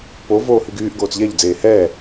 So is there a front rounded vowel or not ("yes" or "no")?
yes